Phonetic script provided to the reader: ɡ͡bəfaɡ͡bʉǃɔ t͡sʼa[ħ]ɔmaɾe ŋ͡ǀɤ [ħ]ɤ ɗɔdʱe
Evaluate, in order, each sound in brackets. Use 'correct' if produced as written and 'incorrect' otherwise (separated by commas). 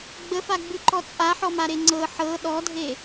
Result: correct, correct